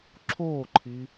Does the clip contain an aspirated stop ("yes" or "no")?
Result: yes